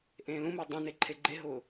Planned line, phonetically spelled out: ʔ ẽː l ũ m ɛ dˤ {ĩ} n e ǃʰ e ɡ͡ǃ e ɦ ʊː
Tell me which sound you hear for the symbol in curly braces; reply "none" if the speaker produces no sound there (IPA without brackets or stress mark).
ẽ